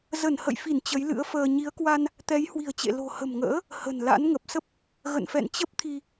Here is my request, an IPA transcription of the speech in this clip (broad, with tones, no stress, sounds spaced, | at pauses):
z ə˧˩ n h ə̰˧˨ j f i˧˩ n t͡ɕ ə˨˦ j l ɨ̰˧˥ ə̯ f əː˧ ɲ i˨˦ ə̯ k w a˧ n | t̪ ɛ˨˦ j h w i̤˨˩ ə̯ t͡ɕ ḛ˧˨ l o̤˨˩ h ə̤˨˩ m ŋ ə̰ː˧˥ | h ə̤˨˩ n l a̰˧˥ n ŋ ə˨˩ p̚ s ə˦˥ p̚ | ɣ ə̰˧˨ n f ɛ̰˧˨ n t͡ɕ ə˦˥ p̚ t̪ʰ i˧